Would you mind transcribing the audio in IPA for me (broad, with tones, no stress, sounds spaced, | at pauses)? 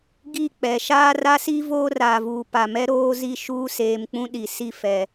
ɡ i˦˨ k͡p ɛ˨ ʃ aː˦ r a˦ s i˦ v oː˦ r aː˨ v uː˨ p a˨ m ɛ˦ ɾ oː˦ z i˦˨ ʃ uː˦ s eː˨ m k͡p ũ˦ ɗ i˨ s i˦ f ɛ˨